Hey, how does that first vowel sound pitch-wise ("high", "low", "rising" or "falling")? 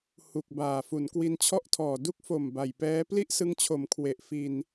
low